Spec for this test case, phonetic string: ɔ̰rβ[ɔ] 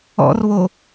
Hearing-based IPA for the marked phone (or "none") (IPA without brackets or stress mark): o